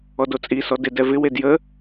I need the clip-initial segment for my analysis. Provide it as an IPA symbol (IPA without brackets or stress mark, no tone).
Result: ɔ